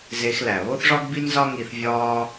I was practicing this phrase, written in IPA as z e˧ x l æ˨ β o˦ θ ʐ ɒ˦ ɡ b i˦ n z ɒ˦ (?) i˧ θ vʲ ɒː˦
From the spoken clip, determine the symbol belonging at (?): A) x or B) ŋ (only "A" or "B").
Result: B